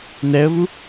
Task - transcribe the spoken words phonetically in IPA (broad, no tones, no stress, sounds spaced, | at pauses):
n ɛ ə̯ v u